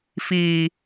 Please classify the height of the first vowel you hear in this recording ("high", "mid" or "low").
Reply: high